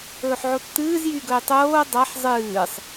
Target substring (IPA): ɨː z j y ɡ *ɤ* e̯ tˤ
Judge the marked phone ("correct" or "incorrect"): incorrect